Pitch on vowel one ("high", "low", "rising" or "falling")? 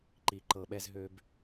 low